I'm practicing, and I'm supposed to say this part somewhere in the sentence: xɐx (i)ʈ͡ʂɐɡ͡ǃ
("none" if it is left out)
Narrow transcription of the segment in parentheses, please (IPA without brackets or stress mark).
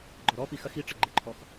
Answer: i